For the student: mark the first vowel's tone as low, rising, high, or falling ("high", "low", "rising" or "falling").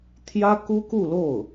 high